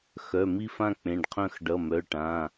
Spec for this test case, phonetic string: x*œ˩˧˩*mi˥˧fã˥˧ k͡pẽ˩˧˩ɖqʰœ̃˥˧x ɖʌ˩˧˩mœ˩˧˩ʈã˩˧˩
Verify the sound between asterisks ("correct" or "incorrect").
correct